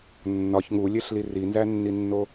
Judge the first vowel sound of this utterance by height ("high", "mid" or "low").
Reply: low